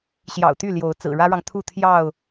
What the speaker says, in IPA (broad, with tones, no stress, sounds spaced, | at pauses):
ɕ j ɑ̰˨˩ ʊ̯ t̪ y˥˨ l j o˨˦ ʊ̯ t͡s ɹ̩˨˩ ɻ ä˦ ɻ ɑ˨ ŋ t̪ʰ u˥˨ t̪ʰ j ɑ˥˨ ʊ̯